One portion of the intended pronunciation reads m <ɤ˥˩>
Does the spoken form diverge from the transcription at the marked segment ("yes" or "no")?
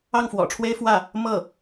no